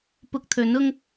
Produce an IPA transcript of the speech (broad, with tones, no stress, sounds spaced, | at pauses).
p ʊ˧ k̚ t̪ʰ ɵ˨˥ n ʊ˥ ŋ